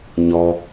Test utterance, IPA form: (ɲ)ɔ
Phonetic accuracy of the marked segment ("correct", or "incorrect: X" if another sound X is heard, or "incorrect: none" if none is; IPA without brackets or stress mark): correct